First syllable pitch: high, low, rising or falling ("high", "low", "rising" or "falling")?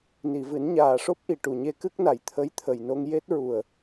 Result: low